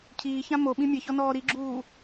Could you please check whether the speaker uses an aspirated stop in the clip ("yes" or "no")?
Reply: yes